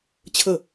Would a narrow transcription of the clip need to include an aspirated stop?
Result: yes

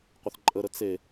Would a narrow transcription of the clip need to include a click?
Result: yes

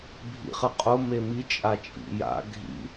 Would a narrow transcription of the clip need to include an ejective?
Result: yes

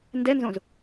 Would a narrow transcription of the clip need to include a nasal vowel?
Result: yes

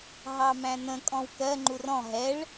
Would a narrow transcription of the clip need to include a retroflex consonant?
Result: yes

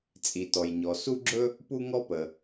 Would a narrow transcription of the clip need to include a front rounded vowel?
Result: no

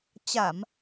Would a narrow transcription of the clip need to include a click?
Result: no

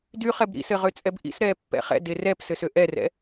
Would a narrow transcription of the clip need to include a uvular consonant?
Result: yes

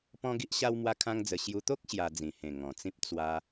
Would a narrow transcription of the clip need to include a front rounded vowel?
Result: no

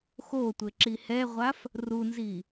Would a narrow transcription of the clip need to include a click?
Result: yes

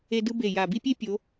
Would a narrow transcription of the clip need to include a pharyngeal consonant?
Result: no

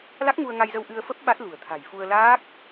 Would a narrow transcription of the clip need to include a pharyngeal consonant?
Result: no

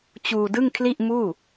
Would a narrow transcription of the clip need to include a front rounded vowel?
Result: no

